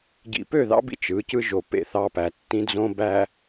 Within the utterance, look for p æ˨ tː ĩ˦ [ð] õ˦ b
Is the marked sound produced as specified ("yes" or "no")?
no